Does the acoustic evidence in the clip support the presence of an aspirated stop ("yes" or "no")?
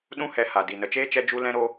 no